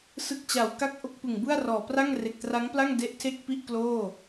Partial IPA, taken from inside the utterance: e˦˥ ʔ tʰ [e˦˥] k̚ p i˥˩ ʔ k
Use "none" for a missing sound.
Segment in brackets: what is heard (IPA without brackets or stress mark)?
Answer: e˥˩